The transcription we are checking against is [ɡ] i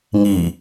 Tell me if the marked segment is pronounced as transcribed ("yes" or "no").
no